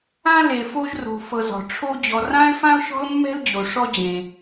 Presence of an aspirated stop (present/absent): present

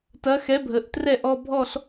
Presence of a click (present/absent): absent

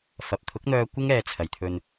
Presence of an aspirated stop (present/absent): present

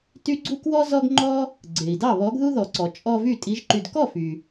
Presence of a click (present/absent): present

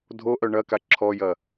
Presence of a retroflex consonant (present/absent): present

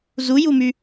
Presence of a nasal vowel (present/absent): absent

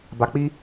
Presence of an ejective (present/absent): absent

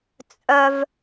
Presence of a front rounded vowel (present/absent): present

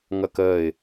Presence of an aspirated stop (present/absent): absent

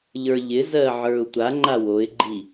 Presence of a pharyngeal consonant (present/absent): present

